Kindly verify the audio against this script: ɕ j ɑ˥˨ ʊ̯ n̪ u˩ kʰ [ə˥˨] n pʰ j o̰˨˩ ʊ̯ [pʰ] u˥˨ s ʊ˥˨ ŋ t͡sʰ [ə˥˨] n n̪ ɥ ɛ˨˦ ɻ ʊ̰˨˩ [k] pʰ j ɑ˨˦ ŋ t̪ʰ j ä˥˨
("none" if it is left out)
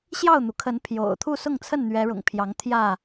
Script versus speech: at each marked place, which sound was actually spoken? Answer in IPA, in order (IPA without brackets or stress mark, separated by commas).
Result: ə˨˦, t̪ʰ, ə˥˨, ŋ